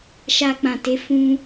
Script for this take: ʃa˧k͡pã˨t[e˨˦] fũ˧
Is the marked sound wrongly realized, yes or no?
no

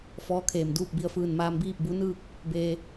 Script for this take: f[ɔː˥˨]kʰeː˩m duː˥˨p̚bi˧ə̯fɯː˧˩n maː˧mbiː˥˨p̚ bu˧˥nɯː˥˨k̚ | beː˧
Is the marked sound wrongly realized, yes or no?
yes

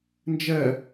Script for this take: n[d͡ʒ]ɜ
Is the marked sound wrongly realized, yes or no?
no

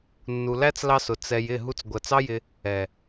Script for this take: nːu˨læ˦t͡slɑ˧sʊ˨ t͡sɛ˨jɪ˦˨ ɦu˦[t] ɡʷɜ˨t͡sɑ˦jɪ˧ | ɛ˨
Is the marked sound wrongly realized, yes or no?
yes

